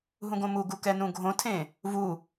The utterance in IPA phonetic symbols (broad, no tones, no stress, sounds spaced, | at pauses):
ɦ ũ ɡ õ m u ɡ u k ɛ n ũ ɡʱ õ tʰ ẽ | v u